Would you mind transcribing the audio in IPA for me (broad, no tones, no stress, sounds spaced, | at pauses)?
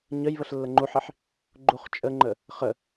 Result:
ɲ ə j β ə ɬ lː ə ŋ͡ǃ u ħ i ħ | ɡ͡ǃ u χ t͡ʃʼ ə ŋ͡ǃ ə | χ ə